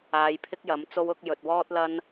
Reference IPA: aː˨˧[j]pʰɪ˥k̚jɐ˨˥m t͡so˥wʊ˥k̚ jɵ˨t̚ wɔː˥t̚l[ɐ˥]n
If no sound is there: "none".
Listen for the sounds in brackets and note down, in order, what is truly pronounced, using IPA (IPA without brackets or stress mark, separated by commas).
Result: j, ɐ˥